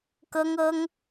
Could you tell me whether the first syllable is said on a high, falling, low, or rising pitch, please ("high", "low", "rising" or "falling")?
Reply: high